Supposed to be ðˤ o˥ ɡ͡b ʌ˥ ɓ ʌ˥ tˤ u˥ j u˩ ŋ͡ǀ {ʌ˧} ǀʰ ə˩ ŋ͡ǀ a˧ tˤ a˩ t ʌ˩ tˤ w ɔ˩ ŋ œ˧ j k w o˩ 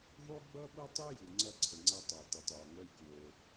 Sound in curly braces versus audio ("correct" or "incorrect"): correct